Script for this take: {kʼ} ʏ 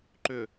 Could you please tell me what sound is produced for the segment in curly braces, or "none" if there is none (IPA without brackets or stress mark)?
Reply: ǃ